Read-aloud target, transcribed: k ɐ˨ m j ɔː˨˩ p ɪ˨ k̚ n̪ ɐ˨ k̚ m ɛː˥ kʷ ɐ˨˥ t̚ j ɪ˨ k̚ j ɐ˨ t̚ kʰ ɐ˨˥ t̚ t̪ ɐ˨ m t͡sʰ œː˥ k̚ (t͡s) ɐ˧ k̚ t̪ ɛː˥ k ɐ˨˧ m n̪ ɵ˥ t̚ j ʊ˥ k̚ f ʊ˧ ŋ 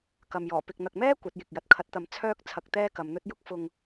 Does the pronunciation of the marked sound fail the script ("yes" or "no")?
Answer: yes